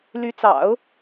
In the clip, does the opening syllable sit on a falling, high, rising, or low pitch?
rising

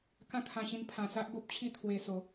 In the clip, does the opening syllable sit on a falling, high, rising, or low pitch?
falling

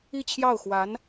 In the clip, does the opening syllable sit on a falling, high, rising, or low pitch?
falling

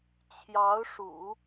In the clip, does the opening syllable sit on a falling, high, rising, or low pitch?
rising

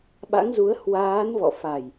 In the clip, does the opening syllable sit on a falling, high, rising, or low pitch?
rising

